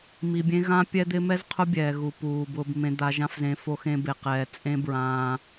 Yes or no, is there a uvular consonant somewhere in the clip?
yes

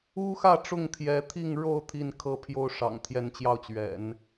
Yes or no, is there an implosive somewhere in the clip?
no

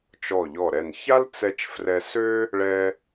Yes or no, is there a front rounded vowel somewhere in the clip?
yes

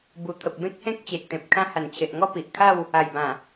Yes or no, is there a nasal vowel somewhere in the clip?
yes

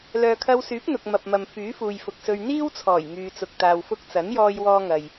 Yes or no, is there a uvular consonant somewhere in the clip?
no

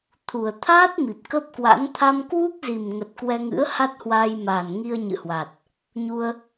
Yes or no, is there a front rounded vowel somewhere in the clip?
no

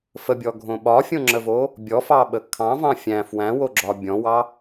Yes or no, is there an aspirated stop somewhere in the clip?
yes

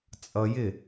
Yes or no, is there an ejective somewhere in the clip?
yes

